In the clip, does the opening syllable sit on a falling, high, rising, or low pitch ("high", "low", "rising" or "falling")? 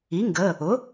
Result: rising